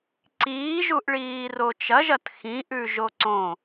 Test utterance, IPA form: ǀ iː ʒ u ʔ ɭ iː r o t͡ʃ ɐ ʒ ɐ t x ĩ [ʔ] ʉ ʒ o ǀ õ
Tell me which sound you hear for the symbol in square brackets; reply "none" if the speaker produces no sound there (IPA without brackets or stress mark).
ʔ